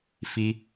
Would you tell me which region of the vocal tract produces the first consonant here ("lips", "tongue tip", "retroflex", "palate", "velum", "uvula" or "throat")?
lips